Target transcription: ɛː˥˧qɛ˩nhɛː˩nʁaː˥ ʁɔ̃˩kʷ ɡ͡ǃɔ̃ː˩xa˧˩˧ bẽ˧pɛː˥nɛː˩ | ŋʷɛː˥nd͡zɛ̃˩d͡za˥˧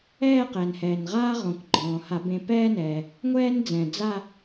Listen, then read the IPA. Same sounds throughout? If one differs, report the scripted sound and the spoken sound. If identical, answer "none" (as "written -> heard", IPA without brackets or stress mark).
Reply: x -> h